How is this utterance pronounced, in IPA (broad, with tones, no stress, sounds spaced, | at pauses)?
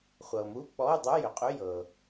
χʷ ɤ˩ m u˧˥˧ k͡p ɔ˧˥˧ u̯ dˤ u˧˥˧ j ʏ˩ qʼ ʏ˧˥˧ j ɤ˩